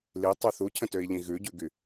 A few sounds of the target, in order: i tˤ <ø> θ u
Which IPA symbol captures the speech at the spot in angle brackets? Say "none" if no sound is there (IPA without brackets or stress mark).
y